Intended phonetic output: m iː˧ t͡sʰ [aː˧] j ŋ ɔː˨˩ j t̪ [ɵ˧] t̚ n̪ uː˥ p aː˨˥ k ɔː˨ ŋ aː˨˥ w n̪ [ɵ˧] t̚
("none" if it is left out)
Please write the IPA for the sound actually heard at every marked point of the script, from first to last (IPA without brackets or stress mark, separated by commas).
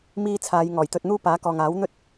aː˨˧, ɵ˧, ɵ˥